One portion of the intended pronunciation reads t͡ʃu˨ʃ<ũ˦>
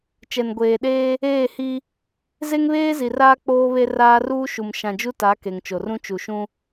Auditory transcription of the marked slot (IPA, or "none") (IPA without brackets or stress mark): ũ˦